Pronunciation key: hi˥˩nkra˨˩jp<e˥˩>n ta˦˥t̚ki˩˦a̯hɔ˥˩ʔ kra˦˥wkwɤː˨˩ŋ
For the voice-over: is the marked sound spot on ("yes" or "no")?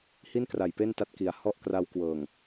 yes